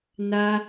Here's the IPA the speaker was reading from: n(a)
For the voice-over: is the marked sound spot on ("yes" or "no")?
yes